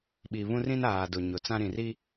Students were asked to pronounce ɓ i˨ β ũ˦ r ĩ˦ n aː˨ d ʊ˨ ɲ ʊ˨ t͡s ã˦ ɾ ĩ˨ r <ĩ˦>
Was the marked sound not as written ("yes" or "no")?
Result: yes